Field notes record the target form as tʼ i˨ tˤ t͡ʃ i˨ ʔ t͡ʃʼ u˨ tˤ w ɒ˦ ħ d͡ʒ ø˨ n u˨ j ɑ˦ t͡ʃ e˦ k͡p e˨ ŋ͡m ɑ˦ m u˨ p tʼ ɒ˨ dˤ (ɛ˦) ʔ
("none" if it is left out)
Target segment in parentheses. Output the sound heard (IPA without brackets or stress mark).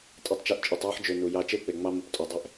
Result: ɛ˦